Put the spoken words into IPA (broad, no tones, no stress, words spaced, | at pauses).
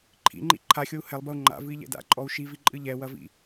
ǃʰḭŋ͡ǃḭ ǃʰaxʲou̯ hɛlˠbɐu̯ ŋ͡ǃa̰vɨi̯ʎɛ̰ da̰ǃʼɔu̯ ʃiviǃʼɨ ʎɛwɐvḭ